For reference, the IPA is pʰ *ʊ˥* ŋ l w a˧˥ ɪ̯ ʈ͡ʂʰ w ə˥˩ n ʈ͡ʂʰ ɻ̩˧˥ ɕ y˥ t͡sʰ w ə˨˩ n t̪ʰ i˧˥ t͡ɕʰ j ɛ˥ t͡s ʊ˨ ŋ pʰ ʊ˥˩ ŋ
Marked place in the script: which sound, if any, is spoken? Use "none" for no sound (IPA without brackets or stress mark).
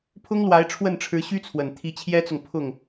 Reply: ʊ˥